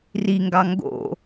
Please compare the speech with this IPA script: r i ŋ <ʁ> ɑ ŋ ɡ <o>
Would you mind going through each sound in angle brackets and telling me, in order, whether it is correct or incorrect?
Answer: incorrect: ɡ, incorrect: o̰

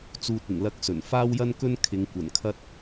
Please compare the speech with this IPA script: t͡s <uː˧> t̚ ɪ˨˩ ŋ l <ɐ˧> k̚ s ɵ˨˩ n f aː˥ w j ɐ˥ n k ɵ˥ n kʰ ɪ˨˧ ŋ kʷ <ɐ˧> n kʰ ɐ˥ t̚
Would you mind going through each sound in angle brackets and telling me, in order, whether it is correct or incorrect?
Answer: correct, correct, incorrect: ɐ˨˩

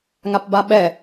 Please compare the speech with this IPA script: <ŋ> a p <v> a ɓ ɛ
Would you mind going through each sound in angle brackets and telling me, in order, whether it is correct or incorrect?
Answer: correct, incorrect: b

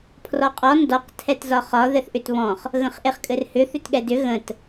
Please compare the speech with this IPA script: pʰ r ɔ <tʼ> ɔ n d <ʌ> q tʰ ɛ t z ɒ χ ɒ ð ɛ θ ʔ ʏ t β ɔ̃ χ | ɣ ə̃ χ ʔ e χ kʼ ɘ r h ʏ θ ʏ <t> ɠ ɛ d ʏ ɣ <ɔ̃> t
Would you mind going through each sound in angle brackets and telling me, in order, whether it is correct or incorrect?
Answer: incorrect: qʼ, incorrect: ɔ, correct, incorrect: ə̃

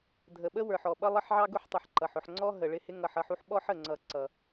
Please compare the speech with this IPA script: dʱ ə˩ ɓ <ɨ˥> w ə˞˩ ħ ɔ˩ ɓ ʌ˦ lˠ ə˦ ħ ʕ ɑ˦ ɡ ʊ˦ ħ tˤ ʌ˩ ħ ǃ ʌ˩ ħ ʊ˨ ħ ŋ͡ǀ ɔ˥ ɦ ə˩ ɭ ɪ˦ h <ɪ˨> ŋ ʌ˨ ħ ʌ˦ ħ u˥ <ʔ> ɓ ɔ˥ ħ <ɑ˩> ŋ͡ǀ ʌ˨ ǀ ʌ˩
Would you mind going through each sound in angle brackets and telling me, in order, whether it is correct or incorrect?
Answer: incorrect: ə˥, incorrect: ɪ˦, incorrect: ħ, incorrect: ə˩

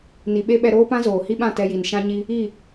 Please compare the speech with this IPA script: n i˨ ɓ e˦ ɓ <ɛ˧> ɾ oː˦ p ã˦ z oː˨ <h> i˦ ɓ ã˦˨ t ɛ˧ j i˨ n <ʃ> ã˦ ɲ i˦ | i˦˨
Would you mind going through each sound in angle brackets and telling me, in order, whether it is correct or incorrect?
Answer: correct, correct, correct

